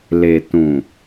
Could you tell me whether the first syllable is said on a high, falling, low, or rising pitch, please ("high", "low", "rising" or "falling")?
low